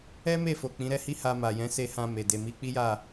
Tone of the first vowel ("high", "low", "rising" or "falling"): high